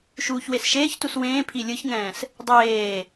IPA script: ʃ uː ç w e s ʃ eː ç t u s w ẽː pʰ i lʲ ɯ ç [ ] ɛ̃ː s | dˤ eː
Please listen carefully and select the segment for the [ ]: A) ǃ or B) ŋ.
B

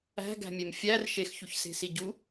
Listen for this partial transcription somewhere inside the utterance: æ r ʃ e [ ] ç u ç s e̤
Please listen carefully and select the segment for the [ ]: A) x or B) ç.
A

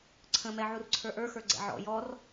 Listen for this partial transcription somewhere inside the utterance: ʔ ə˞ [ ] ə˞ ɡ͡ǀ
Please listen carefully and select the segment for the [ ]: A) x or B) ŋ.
A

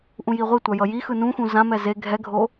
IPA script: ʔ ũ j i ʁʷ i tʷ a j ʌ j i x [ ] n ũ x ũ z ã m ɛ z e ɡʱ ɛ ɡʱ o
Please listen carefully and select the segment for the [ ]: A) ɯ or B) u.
A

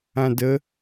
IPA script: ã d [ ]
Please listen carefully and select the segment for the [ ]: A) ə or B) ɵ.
A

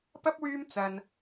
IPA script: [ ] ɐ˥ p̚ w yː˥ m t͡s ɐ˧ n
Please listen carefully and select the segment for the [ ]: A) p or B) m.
A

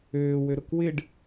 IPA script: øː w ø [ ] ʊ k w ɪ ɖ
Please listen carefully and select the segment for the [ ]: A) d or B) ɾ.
B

